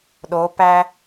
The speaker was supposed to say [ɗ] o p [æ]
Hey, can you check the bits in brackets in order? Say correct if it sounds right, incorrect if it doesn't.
correct, correct

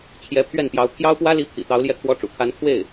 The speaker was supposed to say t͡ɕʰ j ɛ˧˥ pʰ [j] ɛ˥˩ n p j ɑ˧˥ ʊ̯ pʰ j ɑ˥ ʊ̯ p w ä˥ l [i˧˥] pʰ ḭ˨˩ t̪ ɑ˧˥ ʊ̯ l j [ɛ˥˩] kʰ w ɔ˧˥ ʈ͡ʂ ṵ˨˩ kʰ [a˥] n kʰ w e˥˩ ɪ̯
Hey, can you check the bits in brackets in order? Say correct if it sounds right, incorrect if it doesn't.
incorrect: ɥ, correct, correct, incorrect: a˧˥

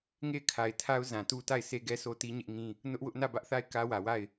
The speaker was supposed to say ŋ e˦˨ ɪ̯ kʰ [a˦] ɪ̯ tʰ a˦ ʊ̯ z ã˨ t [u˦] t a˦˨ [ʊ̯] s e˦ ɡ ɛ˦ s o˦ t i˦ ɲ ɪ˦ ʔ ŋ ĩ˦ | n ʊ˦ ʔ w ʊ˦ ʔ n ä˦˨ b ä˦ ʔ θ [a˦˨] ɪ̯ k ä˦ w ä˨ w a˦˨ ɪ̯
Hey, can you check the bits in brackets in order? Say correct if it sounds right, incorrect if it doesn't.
incorrect: a˨, correct, incorrect: ɪ̯, correct

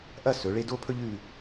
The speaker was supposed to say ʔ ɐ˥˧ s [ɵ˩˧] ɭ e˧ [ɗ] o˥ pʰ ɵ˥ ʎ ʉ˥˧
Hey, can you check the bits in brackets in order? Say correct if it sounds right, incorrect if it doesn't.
correct, incorrect: d

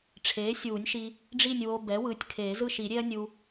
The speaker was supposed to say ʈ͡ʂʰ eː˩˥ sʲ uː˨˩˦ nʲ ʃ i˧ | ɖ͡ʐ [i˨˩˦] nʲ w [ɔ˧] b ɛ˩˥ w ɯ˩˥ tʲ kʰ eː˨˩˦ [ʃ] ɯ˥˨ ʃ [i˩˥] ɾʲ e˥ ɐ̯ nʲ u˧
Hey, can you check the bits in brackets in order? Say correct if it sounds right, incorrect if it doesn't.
incorrect: i˥˨, incorrect: o˧, incorrect: z, incorrect: i˨˩˦

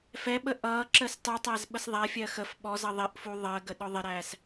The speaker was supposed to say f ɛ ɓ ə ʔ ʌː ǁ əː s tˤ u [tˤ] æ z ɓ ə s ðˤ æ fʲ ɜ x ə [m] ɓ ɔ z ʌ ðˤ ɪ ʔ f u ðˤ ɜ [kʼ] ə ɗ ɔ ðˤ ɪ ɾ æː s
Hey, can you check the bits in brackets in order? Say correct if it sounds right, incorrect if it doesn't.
correct, incorrect: f, incorrect: ɡ

